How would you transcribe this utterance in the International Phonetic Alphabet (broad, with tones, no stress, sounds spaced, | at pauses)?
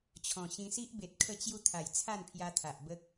t͡ɕʰ ɔ̃˨˩ ɕ ĩ˧ s i˦ ʔ b e˨ t̚ kʰ ə˥˧ t͡ɕ j u˦ t̪ʰ a˨˩ j t͡sʰ a˥˧ n pʰ j a˧ t̪ʰ a˨ ʔ b ə˦ k̚